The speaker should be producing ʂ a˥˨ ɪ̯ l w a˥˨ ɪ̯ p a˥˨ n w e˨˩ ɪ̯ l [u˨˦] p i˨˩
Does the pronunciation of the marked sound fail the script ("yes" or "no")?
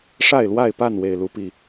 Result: no